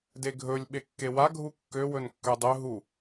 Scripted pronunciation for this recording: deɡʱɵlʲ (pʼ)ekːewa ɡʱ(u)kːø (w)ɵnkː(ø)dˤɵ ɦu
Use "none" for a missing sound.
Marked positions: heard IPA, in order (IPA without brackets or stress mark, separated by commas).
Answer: ɓ, u, w, ø